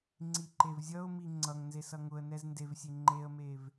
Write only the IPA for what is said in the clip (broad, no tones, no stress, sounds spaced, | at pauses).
ŋ͡ǀ i ǃ e v zʲ ʌ ʊ̯ m i ŋ͡ǀ ʌ ŋ n z e s ʌ ŋ ʊ ə̯ n ɛ z n d e v sʲ e ŋ͡ǃ e ə̯ m e v